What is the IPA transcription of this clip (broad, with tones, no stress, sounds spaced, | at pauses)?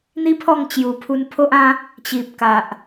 n̪ i˦ pʰ ɔ˥˧ ŋ t͡ɕ j u˨˩ pʰ u˧ n pʰ o˦ ʔ ã˦ | t͡ɕ i˨ p̚ k a˨ ʔ